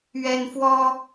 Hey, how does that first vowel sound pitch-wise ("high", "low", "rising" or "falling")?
high